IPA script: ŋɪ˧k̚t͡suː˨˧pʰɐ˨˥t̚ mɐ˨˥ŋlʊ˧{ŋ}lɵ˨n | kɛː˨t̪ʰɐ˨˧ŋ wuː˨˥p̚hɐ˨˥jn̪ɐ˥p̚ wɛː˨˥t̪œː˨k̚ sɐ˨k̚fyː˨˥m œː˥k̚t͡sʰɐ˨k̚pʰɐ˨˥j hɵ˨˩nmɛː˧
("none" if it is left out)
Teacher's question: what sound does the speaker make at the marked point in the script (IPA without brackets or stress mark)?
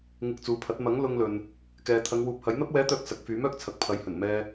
ŋ